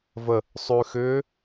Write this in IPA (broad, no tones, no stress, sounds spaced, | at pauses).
v ə | sˤ ʉ x ʏː